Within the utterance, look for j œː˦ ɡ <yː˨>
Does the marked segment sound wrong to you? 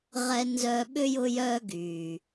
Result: no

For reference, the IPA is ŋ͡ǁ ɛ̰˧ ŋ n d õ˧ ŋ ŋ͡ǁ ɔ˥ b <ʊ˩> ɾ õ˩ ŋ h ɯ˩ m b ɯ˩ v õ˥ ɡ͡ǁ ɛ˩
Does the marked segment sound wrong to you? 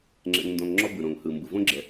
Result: yes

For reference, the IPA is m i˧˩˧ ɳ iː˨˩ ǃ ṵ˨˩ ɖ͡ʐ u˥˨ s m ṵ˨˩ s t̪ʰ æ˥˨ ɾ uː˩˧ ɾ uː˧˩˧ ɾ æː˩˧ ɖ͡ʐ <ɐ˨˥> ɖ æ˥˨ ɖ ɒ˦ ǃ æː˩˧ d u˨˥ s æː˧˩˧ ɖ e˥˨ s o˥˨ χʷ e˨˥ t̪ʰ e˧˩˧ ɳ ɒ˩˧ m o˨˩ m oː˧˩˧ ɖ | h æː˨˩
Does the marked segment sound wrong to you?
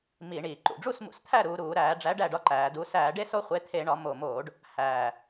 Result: yes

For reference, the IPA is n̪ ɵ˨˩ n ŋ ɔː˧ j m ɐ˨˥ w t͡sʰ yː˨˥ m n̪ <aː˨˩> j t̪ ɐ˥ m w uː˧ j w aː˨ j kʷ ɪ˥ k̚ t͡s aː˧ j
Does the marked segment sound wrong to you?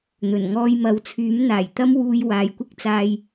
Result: no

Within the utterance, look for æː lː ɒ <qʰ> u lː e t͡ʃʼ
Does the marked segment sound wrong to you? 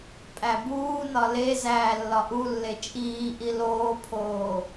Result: yes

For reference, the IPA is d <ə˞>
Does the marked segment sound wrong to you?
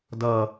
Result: yes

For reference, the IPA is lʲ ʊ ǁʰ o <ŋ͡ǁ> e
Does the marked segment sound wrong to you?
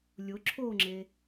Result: no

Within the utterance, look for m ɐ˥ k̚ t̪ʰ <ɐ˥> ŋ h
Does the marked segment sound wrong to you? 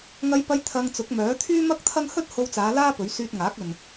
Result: no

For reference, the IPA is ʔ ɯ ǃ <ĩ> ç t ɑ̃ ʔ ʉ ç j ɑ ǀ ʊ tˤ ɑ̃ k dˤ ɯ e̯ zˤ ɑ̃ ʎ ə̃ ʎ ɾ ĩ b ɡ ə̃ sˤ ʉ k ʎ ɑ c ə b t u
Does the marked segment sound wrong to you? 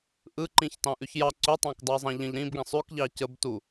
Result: no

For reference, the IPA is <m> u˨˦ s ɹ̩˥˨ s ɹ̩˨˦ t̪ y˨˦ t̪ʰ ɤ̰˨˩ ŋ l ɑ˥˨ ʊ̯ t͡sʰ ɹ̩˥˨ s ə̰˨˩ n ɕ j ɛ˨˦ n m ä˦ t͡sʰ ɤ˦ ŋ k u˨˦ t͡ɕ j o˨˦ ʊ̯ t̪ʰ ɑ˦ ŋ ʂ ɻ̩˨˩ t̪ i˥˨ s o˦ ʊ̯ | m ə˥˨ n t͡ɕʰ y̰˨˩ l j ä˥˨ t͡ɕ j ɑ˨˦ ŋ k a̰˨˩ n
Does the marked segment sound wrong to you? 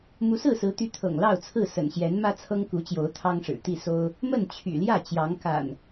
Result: no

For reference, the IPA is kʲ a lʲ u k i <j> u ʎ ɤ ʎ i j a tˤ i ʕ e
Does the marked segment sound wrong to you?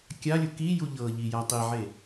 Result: no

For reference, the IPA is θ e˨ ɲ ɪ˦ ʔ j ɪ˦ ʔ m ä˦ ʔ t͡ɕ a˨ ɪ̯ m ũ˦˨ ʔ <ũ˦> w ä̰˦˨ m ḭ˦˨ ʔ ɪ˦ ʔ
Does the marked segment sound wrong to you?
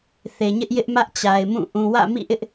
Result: yes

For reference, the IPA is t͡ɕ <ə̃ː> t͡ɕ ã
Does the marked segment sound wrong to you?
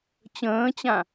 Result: no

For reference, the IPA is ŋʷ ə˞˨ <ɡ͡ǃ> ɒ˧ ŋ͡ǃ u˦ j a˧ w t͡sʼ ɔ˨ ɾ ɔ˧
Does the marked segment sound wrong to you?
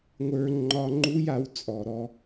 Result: yes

